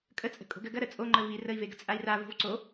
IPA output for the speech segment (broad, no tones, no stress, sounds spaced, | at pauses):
kʼ ə t͡sʼ ə̤ kʼ o̤ ɡ ɜ ɡ ɐ ɾ ə t͡sʼ o ŋ͡ǃ ə v i r ə i̯ v e ɡ ə̤ t͡sʼ a i̯ r a v o̤ v ǀ o